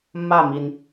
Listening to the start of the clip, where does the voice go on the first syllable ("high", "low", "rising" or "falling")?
falling